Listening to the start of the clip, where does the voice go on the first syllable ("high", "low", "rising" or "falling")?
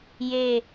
falling